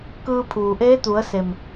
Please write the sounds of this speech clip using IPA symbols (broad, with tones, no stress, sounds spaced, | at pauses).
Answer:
k ɯː˧ pʰ uː˩ ʔ eː˧˥ t̪ u˩˧ ə̯ s e˩ m